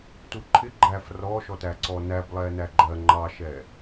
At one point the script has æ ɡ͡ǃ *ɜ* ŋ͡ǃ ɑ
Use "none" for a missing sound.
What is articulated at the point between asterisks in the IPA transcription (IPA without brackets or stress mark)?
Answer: ɜ